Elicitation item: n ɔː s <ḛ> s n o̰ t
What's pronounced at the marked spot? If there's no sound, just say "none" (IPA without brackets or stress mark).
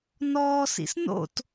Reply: ḭ